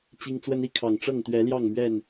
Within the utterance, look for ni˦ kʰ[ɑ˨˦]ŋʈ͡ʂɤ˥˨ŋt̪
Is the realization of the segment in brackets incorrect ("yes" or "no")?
yes